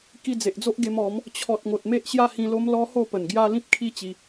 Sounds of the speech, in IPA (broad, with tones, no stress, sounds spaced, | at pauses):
k i˧ d͡z e˨ ʔ d͡z o˦ ʔ ɡ e˧ m ɔ˨˦ m | t͡ɕʰ ɔ˨ t̚ ŋ o˨ t̚ m e˦ ʔ ɕ j a˦ h ĩ˧ l o˦ m l ɔ˦ h o˥˧ p ə˨˩ n ɡ j a˦ l ĩ˦ p̚ kʰ i˦ t͡ɕ i˧